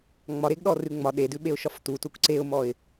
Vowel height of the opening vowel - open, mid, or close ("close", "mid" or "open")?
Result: open